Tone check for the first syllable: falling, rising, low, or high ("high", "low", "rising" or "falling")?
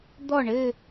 falling